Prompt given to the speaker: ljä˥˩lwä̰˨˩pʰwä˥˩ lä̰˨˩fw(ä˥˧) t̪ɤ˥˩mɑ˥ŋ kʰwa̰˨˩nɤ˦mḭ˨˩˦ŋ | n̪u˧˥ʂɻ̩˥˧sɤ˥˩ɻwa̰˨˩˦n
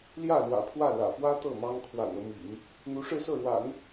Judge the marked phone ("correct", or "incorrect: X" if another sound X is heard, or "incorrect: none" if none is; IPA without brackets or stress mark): incorrect: ä˥